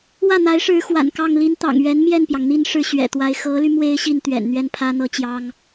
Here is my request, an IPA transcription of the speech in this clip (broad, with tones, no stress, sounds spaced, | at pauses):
w ä˥˩ n̪ a˧˥ ɪ̯ ʂ ɻ̩˧˥ x w a̰˨˩ n k ɑ˥˩ ŋ l i˥ n t̪ ɑ̰˨˩ ŋ ɥ ɛ˧˥ n m j ɛ˥˩ n p j ɑ˩ ŋ n̪ i˥˧ n ʂ ɻ̩˥˩ ɕ ɥ ɛ̰˨˩ t̪ w a˧˥ ɪ̯ x ɤ˧˥ l y˧ m w e˥ ɪ̯ ɕ i˥˩ n t̪ ɥ ɛ̰˨˩ n n̪ ɥ ɛ˥˩ n pʰ ä˥ n̪ ɤ˥ t͡ɕ j ɑ˥ ŋ